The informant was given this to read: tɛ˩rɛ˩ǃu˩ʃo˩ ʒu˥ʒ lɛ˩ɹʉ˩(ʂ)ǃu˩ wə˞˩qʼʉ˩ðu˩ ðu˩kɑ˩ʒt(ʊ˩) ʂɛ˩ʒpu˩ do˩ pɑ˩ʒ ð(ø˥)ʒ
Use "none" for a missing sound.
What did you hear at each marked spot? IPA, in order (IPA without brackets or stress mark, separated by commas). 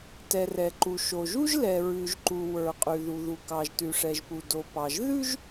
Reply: ʒ, ʉ˩, ʉ˥